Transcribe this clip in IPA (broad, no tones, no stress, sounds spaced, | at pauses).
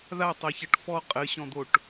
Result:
ð a tˤ ɐ ç ɐ ʈ f ɔ qʼ ɘ ɕ ɔ̃ d̪ o ʈ